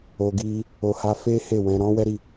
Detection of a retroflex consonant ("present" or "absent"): absent